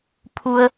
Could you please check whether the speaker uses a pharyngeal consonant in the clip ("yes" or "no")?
no